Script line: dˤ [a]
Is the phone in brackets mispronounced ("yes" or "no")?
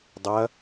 yes